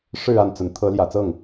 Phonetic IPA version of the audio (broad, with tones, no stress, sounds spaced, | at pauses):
ʂ ɻ̩˥˧ a˥˩ n t͡s ə˧˥ n t̪ʰ ɤ˧˥ l j ä˨˩ t͡s ɤ˥˩ ŋ